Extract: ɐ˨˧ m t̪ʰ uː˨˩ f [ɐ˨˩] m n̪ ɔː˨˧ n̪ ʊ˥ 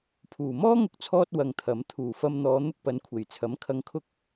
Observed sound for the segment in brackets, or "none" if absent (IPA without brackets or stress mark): ɐ˧